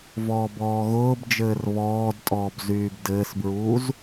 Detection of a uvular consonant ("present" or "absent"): absent